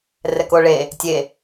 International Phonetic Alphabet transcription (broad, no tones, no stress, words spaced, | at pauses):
rɛkoɭe | tʲe